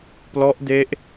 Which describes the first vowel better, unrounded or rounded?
rounded